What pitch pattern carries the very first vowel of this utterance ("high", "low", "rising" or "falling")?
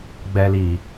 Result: low